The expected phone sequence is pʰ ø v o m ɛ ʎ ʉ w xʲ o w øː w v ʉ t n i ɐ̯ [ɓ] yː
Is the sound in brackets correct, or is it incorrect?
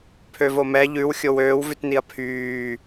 incorrect